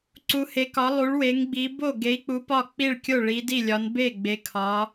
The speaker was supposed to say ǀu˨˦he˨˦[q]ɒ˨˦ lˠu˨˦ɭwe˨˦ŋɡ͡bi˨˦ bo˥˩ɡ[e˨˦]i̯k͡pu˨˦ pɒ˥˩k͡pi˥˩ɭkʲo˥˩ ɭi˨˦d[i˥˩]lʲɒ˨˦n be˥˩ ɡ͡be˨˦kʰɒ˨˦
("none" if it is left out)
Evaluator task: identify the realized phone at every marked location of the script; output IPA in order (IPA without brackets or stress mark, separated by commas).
k, e˨˦, i˥˩